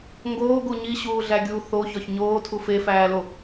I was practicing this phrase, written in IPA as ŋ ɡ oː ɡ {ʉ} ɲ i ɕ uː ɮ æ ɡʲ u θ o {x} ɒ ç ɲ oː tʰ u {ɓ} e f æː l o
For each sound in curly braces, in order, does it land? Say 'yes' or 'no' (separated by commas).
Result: no, no, no